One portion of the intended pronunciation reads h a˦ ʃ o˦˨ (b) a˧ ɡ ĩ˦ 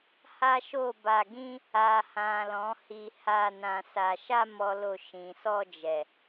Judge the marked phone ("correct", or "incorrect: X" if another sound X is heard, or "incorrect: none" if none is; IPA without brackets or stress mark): correct